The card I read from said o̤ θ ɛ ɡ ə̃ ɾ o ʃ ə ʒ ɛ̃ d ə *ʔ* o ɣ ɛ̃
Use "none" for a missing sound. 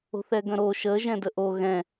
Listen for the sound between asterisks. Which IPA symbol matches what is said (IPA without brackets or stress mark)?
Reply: ʔ